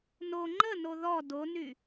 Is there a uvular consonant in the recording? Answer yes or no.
no